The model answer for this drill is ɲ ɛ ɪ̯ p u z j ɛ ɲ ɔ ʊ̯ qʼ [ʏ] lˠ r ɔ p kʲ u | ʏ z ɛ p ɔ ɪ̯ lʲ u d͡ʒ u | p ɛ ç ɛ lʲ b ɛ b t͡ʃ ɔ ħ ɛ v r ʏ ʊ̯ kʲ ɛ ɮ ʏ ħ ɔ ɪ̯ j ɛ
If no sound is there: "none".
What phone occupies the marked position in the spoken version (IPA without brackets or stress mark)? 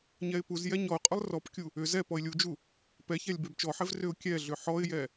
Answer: ʏ